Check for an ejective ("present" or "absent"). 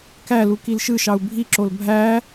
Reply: absent